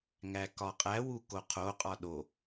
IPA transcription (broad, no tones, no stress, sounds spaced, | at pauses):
ŋ æ k ɒ qʼ æ w u k o qʰ o qʼ ɒ ɗ o